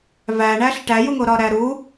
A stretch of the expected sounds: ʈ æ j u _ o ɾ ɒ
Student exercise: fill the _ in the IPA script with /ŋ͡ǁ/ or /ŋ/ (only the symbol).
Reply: ŋ